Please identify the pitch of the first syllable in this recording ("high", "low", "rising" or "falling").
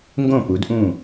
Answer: falling